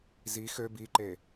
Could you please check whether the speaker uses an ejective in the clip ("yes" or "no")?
no